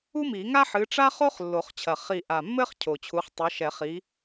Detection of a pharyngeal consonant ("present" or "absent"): present